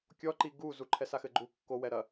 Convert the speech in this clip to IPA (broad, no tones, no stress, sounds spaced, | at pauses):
kʲ ɔ ǃ i ɡ u z u ǃʰ ɛ s a x ɘ ɡ͡ǃ u kː o w ɛ ɾ ɐ